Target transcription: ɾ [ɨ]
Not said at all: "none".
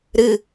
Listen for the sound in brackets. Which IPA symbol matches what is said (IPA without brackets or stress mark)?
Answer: ɨ